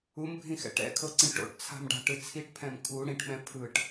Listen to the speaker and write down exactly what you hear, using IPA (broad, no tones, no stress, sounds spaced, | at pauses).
u m bʱ ĩ x ɛ̰ ʈ ɛ̰ kʰ ɤ ǀ ĩ ʈ o̰ ʈ t͡sʰ a̤ m ɖ a̤ ʈ ɯ t͡sʰ i ʈ pʰ ɛ̃ m kʰ u ɽ ĩ ʈ ɓ ɛ̃ pʰ ɯ ʈ